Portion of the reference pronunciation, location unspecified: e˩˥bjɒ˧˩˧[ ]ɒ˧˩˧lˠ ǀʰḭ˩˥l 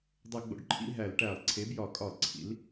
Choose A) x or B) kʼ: B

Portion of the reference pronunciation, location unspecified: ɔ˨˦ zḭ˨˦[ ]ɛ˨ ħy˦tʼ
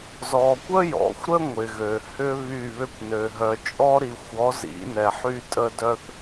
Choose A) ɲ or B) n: B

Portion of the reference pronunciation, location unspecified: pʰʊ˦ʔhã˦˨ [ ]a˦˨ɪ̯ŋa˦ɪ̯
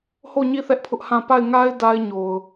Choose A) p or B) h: A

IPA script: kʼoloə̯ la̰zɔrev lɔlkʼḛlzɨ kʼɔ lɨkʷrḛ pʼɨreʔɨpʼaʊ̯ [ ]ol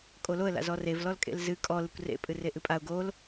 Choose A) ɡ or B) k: A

